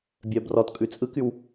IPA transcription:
bʲ œ b r ɔ t kʼ ʉ t͡sʼ ɯ k y w

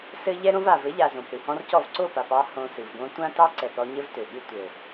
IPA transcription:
s ɘ˦ ʎ ɛ˦ ɾ õ˦ v a˨ v ɘ˨˦ ʎ a˨ z õ˨ p ɾ ɨ˨ h ɔ̃˦ r c ɔ˦˨ v ǀ o˦˨ p a˨ p ɑ˧ h õ˧ s ɨ˨ v ɡ õ˦ tʷ ã˦ t ɑ˦ ǀ ɛ˨ p ɾ ɔ˧ ɲ ɘ˦ v t ø˨ ɠ ɨ˦ tʷ ɘ˨

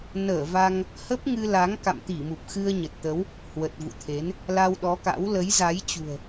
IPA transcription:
n əː˧˩ v a˧ ŋ | h ə˦˥ p̚ ŋ ɨ˧ l a˨˦ ŋ k a̰˧˨ m t̪ i˧˩ m u˨˩ p̚ x ɨ˧ ə̯ ɲ ə˨˩ t̚ t̪ ə˨˦ w | h w ə˨˩ t̚ v ṵ˧˨ t̪ʰ e˨˦ n | l a˧ w ɗ ɔ˨˦ k a̰˧˥ w l ə˨˦ j z a˨˦ j t͡ɕ ṳ˨˩ ə̯

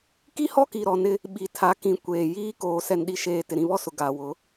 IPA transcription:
k i˦ h ɔ˦ k i˨ ɾ ɔ˨ n ɪ˦ | ɓ i˨ tʰ a˨˦ k ĩ˨ kʷ eː˨ j iː˦ k oː˨ s ɛ˨ n ɗ i˨ ʃ eː˨ t ɪ˨ ɾ ĩ˨ β ɔ˦ s ʊ˨ ɡ a˨ w ʊ˨˦

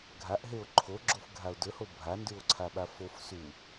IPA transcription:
ɡʱ a ʔ ɦ e o̯ ǃʰ o ɡ͡ǁ o f ɡʱ a o̯ d ɵ h o bʱ a n d ʉ o̯ ǀʰ a ɓ a f o f s u

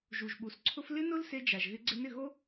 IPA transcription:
ʒ u˨ ʒ ɓ u˨ s ǀʰ ʊ˦ f l ɪ˦ n ʊ˦ l s e˦ d͡ʒ a˨ ʒ ɣ ɪ˦ ɡ͡ǀ ɪ˦ n ɪ˦˨ ɣ o˦

